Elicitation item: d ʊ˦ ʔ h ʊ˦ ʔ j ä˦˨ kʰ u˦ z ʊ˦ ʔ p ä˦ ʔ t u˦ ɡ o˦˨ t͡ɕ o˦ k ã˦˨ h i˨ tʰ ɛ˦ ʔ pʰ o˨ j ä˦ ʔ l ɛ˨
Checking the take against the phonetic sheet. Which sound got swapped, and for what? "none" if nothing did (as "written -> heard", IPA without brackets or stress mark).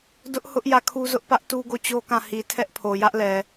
none